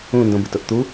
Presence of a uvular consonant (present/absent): absent